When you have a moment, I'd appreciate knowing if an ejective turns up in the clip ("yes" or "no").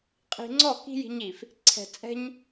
yes